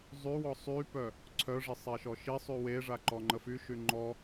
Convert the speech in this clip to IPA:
zˤy wɔsˤypœ | ǀʰœʐi sˤɛʃɔʃisˤy weʐa ǃɔŋ͡ǃəfyʃy ŋ͡ǃɔ

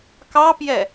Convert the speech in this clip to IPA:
kɑpjɛ

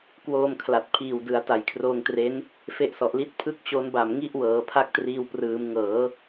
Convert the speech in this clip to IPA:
kwoː˧mkʰla˨˩t̚ pʰiː˨˩wdɯ˩˦a̯ ta˨˩jkʰroː˧ŋtre˦˥n | fe˦˥ʔsɔ˨˩ʔli˦˥t̚ pʰɯ˥˩k̚t͡ɕo˦˥nba˨˩m ŋi˥˩ʔwɤː˩˦ pʰa˥˩k̚triː˧w prɯː˩˦mŋɤː˩˦

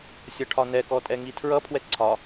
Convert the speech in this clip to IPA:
sʲʌʈʰɒnɛkɔ tʼɛŋitʰɹʌpʰwɛ ǀʰɒ

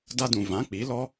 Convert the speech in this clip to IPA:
da˦dũ˨ vã˨˦k͡pi˨˦lɔ˦

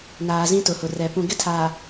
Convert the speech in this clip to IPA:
naː˨zĩ˦tʊ˨hʊ˨ rɛ˨ pũ˨ɡɪ˦tʰaː˨

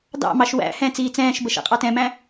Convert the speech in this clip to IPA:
dɑ̰mɑʃ wæ̰ hɛ̃ t͡siːt͡sɛ̃ːʃbə ʃɛ̰qʼɑtɛ̃mæ̃

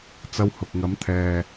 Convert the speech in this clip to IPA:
t͡sɐ˧whʊ˨k̚ŋɐ˨˧m t̪ʰɛː˨

